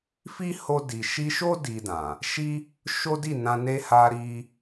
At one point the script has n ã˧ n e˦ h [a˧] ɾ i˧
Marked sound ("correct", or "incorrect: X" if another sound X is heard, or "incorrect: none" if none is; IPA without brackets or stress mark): correct